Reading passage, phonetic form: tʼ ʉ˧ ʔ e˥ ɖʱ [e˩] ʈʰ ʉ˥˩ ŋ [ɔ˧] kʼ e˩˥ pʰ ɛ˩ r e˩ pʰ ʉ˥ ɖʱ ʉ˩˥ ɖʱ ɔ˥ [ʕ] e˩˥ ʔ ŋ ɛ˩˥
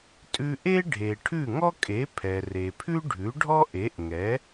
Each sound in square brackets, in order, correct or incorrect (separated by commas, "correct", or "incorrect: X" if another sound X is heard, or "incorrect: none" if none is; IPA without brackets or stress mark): correct, incorrect: ɔ˥, incorrect: ʔ